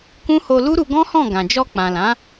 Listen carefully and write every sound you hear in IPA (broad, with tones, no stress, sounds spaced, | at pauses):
k ũ˦ h o˧ l u˦ ɾ u˧ ɡ ɔ̃˦ h ɔ̃˦˨ ɡ ã˨ d͡ʒ ɔ˧ k͡p ã˨ l ã˨˦